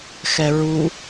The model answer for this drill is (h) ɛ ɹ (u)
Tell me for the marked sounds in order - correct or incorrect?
incorrect: x, correct

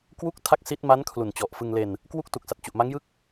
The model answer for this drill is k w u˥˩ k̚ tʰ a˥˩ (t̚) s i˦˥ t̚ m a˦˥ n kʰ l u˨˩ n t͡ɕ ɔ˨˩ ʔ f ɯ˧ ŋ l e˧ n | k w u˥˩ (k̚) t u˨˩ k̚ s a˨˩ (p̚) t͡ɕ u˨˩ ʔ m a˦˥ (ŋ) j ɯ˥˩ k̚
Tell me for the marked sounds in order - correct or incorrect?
incorrect: k̚, correct, incorrect: t̚, correct

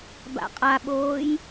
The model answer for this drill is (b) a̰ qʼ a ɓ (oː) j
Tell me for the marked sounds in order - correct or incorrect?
correct, correct

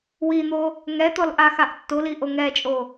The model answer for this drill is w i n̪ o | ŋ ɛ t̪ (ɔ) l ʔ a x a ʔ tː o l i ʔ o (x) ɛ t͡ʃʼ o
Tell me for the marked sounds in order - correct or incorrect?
correct, incorrect: ŋ

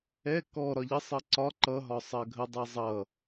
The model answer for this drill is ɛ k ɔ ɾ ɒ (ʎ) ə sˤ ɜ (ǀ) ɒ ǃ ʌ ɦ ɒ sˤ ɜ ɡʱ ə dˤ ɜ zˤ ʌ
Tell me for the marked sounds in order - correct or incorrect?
correct, correct

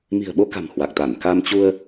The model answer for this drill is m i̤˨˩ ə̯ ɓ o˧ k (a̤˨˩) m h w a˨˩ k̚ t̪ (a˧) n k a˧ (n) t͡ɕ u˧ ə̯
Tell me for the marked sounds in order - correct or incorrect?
correct, incorrect: a˧˩, incorrect: m

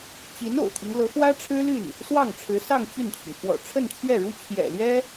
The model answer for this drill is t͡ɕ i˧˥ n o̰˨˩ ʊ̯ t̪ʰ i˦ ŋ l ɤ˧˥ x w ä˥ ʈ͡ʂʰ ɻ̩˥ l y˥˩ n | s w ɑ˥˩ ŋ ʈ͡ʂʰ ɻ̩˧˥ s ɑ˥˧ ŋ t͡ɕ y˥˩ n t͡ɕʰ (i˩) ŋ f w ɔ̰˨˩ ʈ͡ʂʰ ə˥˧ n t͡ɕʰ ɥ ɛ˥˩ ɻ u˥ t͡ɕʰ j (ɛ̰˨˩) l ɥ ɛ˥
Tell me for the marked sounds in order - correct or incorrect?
correct, correct

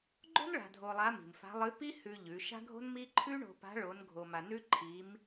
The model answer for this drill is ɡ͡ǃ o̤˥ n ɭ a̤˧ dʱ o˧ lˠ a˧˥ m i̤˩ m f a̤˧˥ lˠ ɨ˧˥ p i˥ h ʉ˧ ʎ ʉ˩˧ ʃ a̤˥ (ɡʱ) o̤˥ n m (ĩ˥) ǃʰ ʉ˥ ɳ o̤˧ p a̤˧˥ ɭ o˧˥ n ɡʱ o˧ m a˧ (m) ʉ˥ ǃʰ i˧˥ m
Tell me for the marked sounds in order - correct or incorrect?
correct, incorrect: i˥, incorrect: n

